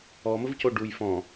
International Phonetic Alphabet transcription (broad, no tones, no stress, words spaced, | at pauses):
ɔməvco ɖuj fɔ̃